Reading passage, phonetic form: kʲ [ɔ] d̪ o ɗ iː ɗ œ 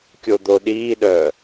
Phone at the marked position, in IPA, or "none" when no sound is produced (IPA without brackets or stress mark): o